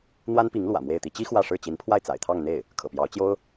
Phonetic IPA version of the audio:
n̪wa˥npi˧˥ŋ lwä̰˨˩mwe˥˩ɪ̯t̪i˥ t͡ɕi˥ xwä˥˧ʂɻ̩˥˩ t͡ɕi˧˥npʰwa˥˩ɪ̯ t͡sa̰˨˩ɪ̯t̪ʰɑ˥˧ŋ n̪e˥˩ɪ̯ | kʰɤ̰˨˩pjɑ˧˥ʊ̯ t͡ɕjo˥ʊ̯

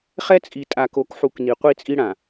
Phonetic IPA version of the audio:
χɛ˦t͡sʼi˨ tʼa˨ko˨˦kħu˨k ni˨qʷi˦˨t͡sʼi˦ɽã˨

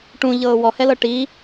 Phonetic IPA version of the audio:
ʈũʎɤː wɔhɛlɤ ʈi

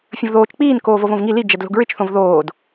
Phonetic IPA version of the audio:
fʲə̃vðoːt͡ʃ k͡piːn koːvovõvŋi li d͡ʒɛdlo̤ɡɹɪt͡ʃ θõvðoːd

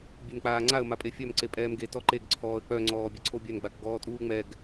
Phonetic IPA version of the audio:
bʲenk͡paːŋ͡ǀaə̯ mapʼefʲœm ǀepʼɛːmɡe tɔǃeɡ ǀʰɔːə̯k͡pœ ŋ͡ǀɔːbʲɛǀʰobʲœn ɡ͡bakɡɔːtʼuːŋ͡mɛɡ

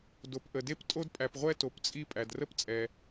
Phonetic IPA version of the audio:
do˩pʔə˩de˥p tʼo˥dpʼæ˩pʁʷɛ˥ to˩pt͡sʼi˥ pʼæ˩drə˥p t͡sʼɛ˩

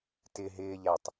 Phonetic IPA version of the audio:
tɪ ɦɪːʎætˤ

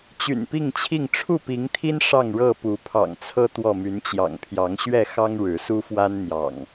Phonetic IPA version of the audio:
t͡ɕy̰˨˩npi˥˨ŋt͡ɕʰi˥˨ŋ ʈ͡ʂʰu˥˨pi˨˦ŋt̪ʰi˦n ʂɑ˥˨ŋɻɤ˥˨ pu˨˦pʰɑ̰˨˩ŋt͡sʰɤ˦ t̪wɔ˥˨my˨˦nt͡ɕjɑ̰˨˩ŋ pʰjɑ˨˦ŋɕɥɛ˥˨xɑ˦ŋ ɻɻ̩˨˦su˦fwa˦n n̪jɑ̰˨˩ŋ

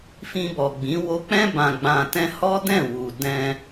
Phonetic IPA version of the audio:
fĩ˧bɔ˨ ɡ͡bĩ˨˦ wo˧k͡pɛ̃˦ bã˧ɡ͡bã˧tɛ̃˦ hɔ˦dɛ̃˦˨wu˨ dɛ̃˧

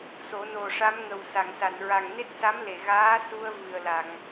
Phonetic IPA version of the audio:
so˨˩˦no˨˩ʂa˧˥mŋə˨˩w sa˨˩˨ŋsa˨˩˨nɹa˨˩ŋ ne˦˥t̚sa˧˥mle˨˩˨ ɣaː˧˥su˧ə̯ vɨ˨˩ə̯la˨˩˨ŋ

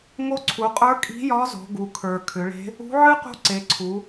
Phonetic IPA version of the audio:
ŋo˧˥ǀʰu˩˧qʼə˞˧˥ kʼi̤˧˥jɒ˧˥ zo̤˩˧ɡu˩kʰə˞˩ kʰʏ˩˧ɭe̤˧˥ | ṳ˧˥ʕɨ˥qṳ˧˥ ǀe˩˧ǀʰu˩˧

